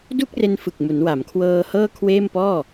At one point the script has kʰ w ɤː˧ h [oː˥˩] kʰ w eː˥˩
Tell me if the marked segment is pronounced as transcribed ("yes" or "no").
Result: no